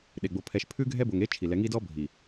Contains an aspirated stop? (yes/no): yes